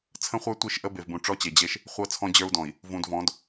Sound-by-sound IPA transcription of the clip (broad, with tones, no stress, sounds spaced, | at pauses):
t͡sʰ ə̃˦ χʷ ə˞˦ tʷ i˦˨ ʃ ʔ ə˦ b e˨ v b ũ˨ ʈ͡ʂ ɔ˦ t͡ɕ e˨ d͡ʑ e˦ ʃ | χʷ ɤ˦ t͡sʰ ɔ̃˦ d͡ʑ ə˞˦ u̯ d ɔ̃˨ i̯ | v ũ˨ d v ɔ̃˨˦ d